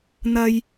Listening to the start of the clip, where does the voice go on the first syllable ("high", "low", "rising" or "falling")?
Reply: low